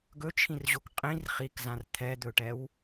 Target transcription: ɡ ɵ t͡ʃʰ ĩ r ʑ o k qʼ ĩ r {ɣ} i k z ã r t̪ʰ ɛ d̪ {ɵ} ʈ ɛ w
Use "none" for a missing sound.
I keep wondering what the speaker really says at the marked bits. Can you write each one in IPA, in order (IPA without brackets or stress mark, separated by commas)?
χ, ɵ